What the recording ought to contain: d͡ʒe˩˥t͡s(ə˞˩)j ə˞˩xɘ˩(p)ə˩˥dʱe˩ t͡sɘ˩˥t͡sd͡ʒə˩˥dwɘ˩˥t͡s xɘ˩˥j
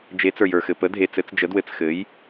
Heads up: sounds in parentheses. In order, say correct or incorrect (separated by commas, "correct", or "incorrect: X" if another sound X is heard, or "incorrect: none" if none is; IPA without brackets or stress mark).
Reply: correct, correct